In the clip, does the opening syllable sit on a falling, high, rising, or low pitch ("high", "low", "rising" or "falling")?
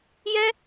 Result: high